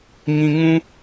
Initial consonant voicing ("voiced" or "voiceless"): voiced